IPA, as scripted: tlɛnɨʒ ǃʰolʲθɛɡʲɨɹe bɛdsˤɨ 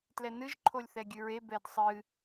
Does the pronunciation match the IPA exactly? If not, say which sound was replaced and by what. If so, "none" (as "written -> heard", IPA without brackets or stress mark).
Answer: none